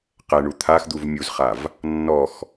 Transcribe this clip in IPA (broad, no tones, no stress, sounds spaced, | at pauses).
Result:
q ɛ ɳ u t̪ʰ a x d̪ u v mʲ u z χ a v | nː ɔ x